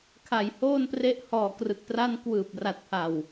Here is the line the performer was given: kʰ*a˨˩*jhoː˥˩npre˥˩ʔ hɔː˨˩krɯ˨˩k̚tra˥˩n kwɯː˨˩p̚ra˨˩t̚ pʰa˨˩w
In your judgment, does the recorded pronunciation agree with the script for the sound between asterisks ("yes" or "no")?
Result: yes